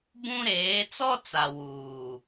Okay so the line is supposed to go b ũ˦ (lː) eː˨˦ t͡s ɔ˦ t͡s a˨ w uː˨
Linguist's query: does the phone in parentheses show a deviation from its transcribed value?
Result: yes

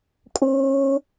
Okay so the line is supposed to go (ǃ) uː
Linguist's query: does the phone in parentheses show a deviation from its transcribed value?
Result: yes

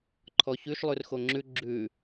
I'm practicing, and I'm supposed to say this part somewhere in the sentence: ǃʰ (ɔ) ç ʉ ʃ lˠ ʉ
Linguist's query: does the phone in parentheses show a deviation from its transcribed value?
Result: no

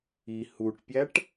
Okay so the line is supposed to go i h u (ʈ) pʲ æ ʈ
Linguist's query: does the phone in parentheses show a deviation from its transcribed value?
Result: no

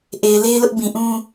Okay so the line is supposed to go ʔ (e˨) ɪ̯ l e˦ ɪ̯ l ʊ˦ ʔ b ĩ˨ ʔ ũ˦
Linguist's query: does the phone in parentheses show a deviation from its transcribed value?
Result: no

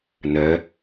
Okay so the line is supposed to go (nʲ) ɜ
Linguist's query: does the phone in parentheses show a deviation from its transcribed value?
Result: yes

